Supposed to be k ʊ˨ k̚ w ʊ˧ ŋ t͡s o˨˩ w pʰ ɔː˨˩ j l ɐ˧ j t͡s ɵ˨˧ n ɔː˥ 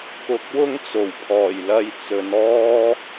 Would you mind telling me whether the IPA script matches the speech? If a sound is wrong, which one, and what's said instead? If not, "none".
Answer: none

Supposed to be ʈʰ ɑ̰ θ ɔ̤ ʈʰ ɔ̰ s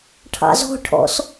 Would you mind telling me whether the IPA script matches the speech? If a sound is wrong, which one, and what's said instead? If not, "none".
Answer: θ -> z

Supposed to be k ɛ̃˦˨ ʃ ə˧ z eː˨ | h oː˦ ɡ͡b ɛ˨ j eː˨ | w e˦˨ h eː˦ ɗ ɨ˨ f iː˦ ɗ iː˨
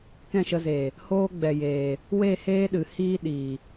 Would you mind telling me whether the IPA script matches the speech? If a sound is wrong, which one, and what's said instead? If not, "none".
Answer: f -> h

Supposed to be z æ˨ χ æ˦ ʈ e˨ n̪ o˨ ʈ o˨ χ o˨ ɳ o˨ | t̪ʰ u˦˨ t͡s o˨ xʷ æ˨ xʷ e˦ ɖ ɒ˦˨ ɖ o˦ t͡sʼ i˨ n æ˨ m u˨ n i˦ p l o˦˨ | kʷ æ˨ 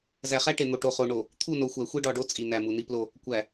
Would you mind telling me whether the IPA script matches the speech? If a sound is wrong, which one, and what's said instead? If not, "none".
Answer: t͡s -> n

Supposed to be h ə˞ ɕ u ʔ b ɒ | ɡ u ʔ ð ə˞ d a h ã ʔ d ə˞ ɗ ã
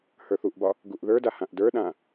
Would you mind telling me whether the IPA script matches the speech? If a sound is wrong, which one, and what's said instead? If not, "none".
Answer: ɕ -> θ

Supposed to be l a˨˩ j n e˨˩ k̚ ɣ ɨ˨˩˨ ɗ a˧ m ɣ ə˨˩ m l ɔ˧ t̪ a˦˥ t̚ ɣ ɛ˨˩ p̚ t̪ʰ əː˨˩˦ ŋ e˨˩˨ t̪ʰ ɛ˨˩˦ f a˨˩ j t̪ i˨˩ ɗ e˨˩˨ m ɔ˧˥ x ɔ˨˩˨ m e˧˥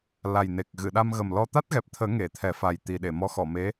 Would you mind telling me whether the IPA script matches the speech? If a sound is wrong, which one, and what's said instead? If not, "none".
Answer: none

